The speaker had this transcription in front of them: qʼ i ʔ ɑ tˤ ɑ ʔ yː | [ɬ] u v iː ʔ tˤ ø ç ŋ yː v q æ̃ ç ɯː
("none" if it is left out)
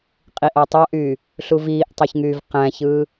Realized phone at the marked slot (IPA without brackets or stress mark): ɬ